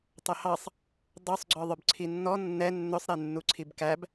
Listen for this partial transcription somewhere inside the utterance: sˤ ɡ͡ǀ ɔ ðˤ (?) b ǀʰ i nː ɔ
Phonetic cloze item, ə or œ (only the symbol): œ